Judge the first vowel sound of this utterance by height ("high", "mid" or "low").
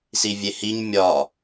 high